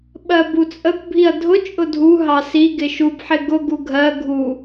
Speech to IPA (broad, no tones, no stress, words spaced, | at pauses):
ɓɜbut͡sʼəkʷ bʱiɐ̯dʱʊ t͡ʃʼʊdʱu ɦɑsi ɡɪʃub ħɪɡʊ ɡuɡʱɜ ɡʱu